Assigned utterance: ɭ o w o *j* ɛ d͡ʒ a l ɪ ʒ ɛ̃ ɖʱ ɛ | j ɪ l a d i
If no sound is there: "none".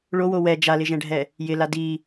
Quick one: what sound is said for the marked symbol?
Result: w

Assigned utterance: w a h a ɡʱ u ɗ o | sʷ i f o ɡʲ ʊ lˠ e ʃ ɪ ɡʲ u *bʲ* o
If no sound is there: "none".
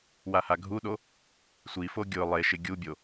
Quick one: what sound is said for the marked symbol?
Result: bʲ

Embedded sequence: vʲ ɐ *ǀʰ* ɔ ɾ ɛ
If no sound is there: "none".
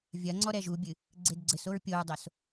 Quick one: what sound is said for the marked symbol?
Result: ŋ͡ǀ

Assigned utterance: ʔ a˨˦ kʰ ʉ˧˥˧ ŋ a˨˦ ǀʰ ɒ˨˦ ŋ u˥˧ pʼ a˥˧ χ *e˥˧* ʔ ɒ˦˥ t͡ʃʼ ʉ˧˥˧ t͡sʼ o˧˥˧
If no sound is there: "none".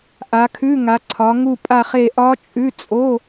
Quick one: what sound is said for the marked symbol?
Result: e˥˧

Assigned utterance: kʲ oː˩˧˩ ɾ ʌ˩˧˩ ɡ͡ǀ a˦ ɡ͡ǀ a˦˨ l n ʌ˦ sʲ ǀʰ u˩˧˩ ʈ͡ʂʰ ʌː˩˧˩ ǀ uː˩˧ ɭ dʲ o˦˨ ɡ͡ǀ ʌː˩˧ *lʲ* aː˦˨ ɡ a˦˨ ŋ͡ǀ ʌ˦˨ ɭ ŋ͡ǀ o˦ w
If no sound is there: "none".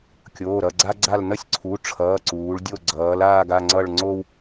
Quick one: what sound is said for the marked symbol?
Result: l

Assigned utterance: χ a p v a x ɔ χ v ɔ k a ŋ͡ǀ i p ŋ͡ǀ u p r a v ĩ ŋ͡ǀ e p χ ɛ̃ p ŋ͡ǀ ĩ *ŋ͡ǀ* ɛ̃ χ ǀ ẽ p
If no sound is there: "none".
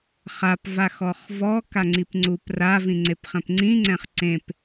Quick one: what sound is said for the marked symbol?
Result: ŋ͡ǀ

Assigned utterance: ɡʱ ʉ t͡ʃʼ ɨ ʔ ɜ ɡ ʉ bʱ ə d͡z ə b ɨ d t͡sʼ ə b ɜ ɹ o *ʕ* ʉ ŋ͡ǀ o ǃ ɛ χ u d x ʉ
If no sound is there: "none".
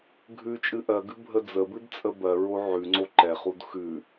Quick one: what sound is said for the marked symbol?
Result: ʕ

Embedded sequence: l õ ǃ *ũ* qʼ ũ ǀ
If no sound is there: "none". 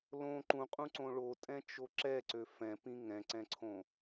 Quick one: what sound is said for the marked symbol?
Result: ũ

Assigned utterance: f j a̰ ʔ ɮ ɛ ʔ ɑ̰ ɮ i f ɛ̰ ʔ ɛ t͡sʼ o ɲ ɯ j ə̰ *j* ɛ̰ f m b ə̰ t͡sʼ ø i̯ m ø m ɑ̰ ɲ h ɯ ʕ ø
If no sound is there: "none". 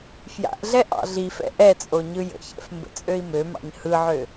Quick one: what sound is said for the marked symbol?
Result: ç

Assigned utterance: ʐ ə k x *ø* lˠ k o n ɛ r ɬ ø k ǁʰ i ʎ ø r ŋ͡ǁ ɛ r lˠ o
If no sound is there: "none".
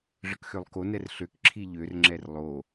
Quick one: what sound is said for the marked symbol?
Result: ø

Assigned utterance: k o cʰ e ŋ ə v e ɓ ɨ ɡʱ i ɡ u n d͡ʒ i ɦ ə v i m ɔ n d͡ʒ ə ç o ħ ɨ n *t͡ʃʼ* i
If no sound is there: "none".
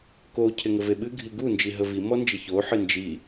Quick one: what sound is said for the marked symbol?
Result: d͡ʒ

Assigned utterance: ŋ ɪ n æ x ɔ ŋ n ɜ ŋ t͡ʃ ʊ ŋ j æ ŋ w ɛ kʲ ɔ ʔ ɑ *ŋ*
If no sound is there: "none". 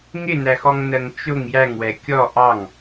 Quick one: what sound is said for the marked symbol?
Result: ŋ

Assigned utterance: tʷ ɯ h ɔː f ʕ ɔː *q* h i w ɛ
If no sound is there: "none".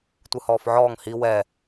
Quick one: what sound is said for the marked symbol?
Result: ŋ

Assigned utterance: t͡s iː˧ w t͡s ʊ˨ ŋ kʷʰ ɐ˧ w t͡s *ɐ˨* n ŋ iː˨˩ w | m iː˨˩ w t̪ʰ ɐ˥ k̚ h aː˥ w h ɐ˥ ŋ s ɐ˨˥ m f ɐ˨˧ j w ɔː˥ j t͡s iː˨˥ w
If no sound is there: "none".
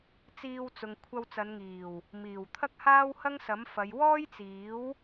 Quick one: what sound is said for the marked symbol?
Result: ɐ˨˧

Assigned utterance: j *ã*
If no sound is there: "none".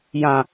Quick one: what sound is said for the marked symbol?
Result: ã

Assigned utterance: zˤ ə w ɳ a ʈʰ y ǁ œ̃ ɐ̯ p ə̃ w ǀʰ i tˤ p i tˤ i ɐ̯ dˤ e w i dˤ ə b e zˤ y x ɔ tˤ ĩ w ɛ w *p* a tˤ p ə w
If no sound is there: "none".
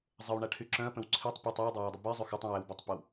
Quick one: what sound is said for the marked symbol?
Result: b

